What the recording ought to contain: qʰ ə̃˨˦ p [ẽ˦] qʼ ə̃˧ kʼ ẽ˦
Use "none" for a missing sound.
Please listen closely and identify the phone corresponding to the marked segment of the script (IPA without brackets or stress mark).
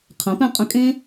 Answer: ɛ̃˦